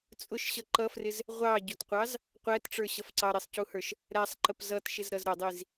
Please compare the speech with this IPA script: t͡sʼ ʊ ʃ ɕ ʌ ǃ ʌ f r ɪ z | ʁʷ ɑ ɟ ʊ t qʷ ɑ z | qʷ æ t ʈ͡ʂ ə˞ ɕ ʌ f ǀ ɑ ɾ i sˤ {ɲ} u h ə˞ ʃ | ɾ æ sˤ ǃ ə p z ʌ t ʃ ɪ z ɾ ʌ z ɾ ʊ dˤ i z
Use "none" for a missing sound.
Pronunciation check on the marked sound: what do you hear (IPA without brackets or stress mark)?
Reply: c